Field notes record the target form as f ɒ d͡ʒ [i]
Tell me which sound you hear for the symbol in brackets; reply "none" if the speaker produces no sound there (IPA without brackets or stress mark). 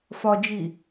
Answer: i